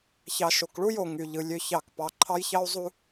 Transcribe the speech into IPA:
ç ɑ˨ ʃ o˨ k ɭ u˦ j o˨ ŋ y˨ ʎ ɯ˨ lʲ ø˦ ç ɑ˦˨ k p ɑ˨ ǃʰ ɑ˦ j ç ɑ˦ u̯ zˤ u˦

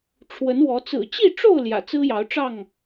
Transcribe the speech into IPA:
ʈ͡ʂʰ w ə˨˦ n w ɔ˨˦ t͡s ɹ̩˨˩ t͡ɕ i˥˨ ʈ͡ʂ o˥˨ ʊ̯ l j ä̰˨˩ t͡s ɹ̩˦ j ɑ˨˦ ʊ̯ ʈ͡ʂ ɑ˥˨ ŋ

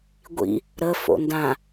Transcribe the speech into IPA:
ɡʷ ḭ | ɾ ə f o̰ n d ã

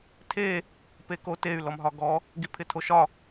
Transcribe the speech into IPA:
tʰ e | p e k o t e y̯ l ɔ m ɦ ɒ ɡ ɔ | ɡ i pʰ ɪ tʰ o ʃ ɒ

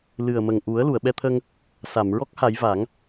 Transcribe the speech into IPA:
l ɨ˨˩ ə̯ m ə˨˩ ŋ ʔ u˨˩˦ ə̯ l u˨˩˨ ə̯ ɓ ɛ˧ t̪ʰ ə˧ ŋ | s a˨˩˨ m ɹ ɔ˦˥ k̚ h a˨˩˦ j v a˨˩˦ ŋ

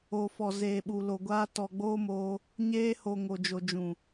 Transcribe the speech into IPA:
o˨ f ɔ˨ z eː˨ ɓ u˨ l o˨ ɡʷ aː˧ t ɔ˨ ɡ͡b oː˦ m oː˧ | ɲ eː˧ h o˨ ŋ o˨ d͡ʒ o˨ d͡ʒ ũ˨

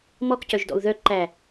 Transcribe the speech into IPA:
m ɔ k c œ ʒ d ɔ̰ u̯ ð œ ǃ æ

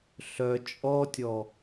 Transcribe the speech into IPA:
ɬ œ t͡ʃʼ ɔ tʲ ɔ

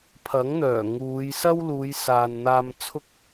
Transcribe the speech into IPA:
pʰ ɐ˨˥ ŋ n̪ œː˨˩ ŋ uː˨˧ j s ɐ˥ w l uː˨˧ j s aː˨ n n̪ aː˧ m t͡sʰ ʊ˥ k̚

